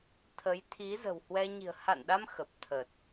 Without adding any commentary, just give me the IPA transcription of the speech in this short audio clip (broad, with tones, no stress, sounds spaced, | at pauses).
t̪ʰ ə˨˦ j t̪ʰ i˨˦ z ə̤˨˩ w h w ɛ˧ ɲ i̤˨˩ ə̯ h a̰˧˨ n ɗ a˧ m x ə˨˩ p̚ t̪ʰ ə˨˩ t̚